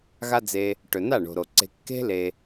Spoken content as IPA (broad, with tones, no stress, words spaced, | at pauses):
ɣa˦d͡ze˧ | ʈɵ˨na˦˨ɳo̤˨ɾo˨ ǀe̤˧ kːe̤˦ le˧